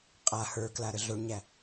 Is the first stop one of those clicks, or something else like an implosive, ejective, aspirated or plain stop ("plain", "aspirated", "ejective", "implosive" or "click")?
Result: ejective